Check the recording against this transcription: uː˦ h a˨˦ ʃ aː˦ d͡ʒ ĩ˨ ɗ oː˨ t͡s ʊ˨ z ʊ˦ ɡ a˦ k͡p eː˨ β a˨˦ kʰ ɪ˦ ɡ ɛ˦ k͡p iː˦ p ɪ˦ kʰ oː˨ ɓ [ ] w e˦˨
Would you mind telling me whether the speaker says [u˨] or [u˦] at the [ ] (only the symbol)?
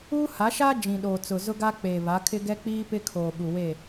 u˨